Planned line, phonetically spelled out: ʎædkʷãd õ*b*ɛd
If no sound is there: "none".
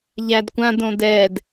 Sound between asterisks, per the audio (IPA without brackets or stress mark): d